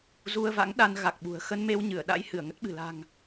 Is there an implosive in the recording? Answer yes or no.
yes